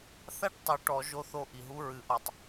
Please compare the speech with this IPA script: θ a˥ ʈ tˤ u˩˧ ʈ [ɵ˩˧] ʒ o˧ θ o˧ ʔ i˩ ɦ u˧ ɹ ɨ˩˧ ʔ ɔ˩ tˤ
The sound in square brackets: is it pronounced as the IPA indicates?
no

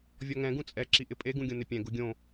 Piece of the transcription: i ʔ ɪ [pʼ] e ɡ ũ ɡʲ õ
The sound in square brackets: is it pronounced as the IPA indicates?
yes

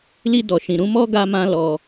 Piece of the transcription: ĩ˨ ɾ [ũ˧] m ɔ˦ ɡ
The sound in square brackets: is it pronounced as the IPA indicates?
yes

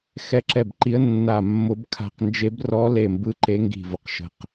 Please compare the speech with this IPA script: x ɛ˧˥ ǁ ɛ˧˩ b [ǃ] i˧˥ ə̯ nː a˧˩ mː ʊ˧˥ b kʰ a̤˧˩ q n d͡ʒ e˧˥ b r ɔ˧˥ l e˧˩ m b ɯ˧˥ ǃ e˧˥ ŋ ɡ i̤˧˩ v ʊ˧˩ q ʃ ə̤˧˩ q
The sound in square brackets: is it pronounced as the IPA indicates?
yes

